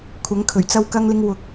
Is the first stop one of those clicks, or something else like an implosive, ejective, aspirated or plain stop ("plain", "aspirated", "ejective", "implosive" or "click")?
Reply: aspirated